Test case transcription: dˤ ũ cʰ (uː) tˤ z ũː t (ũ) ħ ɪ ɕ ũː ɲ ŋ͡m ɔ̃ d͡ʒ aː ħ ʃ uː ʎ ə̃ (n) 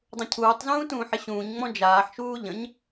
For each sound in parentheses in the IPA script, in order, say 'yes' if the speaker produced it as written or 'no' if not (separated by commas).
yes, no, no